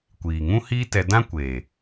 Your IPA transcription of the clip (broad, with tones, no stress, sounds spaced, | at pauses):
kʷ iː˨ ŋ ũ˦ h iː˦ t ɛ˧ d ã˦ kʷ eː˨